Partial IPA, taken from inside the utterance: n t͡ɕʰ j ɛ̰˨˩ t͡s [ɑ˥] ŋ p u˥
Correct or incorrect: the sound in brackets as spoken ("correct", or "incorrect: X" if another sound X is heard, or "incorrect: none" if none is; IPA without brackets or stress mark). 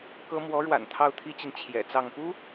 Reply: incorrect: ɑ˥˩